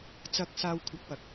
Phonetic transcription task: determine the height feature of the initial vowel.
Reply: low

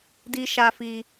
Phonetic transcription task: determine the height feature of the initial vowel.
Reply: high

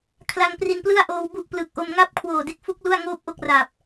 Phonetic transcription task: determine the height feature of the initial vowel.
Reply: low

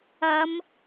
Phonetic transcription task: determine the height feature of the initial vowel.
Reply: low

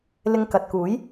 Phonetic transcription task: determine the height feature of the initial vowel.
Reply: high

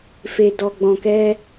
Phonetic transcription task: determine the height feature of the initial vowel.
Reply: mid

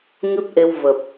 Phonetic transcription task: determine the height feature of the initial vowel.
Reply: high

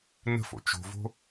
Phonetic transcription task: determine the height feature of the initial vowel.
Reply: mid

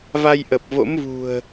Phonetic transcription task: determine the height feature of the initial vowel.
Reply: low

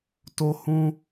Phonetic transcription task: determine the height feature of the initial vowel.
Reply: mid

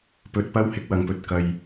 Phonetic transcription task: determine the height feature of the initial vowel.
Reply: mid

